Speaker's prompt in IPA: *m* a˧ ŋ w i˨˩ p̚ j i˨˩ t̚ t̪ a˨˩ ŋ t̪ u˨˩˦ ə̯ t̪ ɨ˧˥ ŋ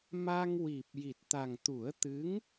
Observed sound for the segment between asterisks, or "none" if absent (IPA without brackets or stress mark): m